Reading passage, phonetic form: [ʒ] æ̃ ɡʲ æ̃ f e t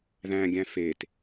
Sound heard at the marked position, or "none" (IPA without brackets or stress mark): ð